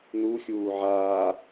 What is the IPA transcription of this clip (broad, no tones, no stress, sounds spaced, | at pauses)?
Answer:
n̪ u xʲ uː ʕ aː